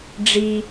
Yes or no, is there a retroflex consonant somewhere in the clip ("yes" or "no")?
yes